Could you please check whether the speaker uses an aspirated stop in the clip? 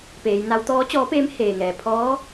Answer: yes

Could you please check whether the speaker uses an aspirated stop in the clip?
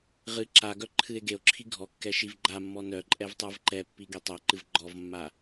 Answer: yes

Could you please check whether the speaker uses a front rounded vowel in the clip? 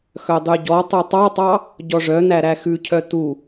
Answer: yes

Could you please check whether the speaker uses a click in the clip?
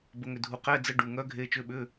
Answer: no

